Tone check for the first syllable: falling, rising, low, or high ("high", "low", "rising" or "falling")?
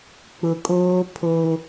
low